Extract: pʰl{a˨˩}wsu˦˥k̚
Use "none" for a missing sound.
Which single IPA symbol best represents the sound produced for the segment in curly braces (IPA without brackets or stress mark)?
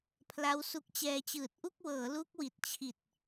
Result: a˦˥